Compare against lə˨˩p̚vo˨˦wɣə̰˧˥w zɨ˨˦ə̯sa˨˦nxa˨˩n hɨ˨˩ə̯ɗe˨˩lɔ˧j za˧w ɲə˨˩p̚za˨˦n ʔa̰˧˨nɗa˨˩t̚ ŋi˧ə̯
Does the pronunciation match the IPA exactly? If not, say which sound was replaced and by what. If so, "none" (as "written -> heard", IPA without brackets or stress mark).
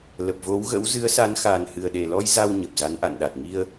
none